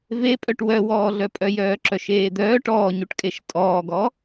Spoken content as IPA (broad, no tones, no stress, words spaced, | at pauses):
vepʼœʈ wœwɔːɮœpʼœ jœːǁœʃeːd̪œːʈ ɔːɲuʈkʼeʃ tʼɔːɡɔ